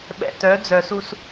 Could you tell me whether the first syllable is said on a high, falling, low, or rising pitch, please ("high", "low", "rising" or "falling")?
low